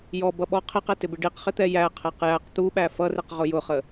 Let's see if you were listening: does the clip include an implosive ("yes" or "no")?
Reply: yes